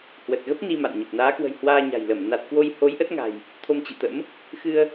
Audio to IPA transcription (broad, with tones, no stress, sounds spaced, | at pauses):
h w ə˨˩ t̚ ɣ ə˦˥ p̚ n i˧ m a̰˧˨ n ɲ ə˨˩ p̚ n aː˨˦ k w ə̤˨˩ j h w aː˧ ɲ a̤˨˩ j l ə˧˩ m n a˨˩ t̚ k w o˧ j h o˨˦ j ʔ ə˦˥ t̚ ŋ a̤˨˩ j | t̪ʰ o˧ m t͡ɕ ḭ˧˨ t̪ ə̰˧˥ m | x ɨ˧ ə̯